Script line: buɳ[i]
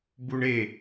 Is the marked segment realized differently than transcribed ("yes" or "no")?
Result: yes